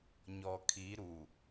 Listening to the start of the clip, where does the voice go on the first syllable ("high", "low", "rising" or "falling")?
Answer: low